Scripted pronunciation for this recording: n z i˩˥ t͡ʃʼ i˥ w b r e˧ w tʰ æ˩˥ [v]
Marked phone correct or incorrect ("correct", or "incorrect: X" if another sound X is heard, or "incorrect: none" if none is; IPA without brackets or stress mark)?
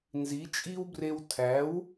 incorrect: w